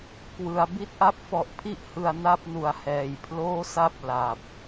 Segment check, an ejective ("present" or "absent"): absent